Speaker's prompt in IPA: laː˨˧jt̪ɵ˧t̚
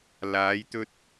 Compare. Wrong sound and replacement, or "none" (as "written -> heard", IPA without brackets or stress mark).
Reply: none